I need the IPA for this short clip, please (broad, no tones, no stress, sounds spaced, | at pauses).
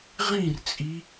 ʁ ĩ r t͡sʼ i